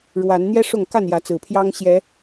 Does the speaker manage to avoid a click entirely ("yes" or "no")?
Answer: yes